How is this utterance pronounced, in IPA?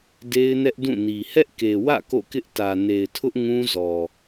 de˦ɪ̯nɛ˦ʔdũ˦˨ni˨ hɛ˦ʔke˨wä̰˦˨ ko̰˦˨kɪ˦ʔ tä˨ne˨ɪ̯tʰʊ˦ʔ ŋũ˦zɔ˨

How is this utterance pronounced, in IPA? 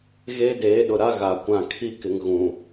ɣeː˦deː˨˦ɗʊ˨ɾa˦ ɣa˨ kʷã˦˨ kʰi˦kɪ˨ŋ ɣũ˨

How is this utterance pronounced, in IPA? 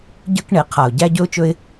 ɟə˞˦kɳe˨˦ qʰa˨ʊ̯ɟæ˦ɟɵ˦ʊ̯t͡ʃɵ˦ɪ̯

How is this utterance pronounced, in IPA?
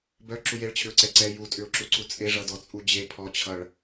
bœ ǁujeɭt͡ɕʰʏʊ̯ ǀɛǀɛ jutʼʏʊ̯ǁuǀu t͡sʼeʐʌdɔ t͡sʼud͡ʑe pʰɔt͡ɕʰʌɭ

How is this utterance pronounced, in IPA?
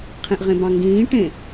qʰẽʔʁẽbɑ̃ŋɡĩː ʈẽ

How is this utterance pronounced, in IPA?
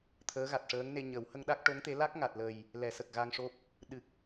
t̪ʰəː˧˥ɣa˨˩t̚ʂəː˧˥ŋne˧ ɲə˨˩˦w hə˧ŋɗa˦˥k̚ʈo˧˥ŋt̪e˧˥ la˦˥k̚ŋa˨˩t̚lə˨˩j | lɛ˨˩˦sə˨˩k̚ɣa˧ŋʂo˦˥p̚ | ɗɨ˨˩k̚

